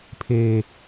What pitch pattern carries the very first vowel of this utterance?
low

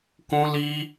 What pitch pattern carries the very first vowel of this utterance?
high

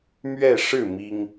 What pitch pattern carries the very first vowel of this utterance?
falling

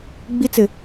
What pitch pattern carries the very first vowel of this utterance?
high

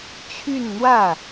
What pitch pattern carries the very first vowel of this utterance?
falling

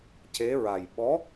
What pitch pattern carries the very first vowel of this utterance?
rising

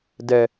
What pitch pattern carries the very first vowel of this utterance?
low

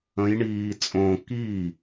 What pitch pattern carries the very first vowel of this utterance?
rising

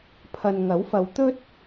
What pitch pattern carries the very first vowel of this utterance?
low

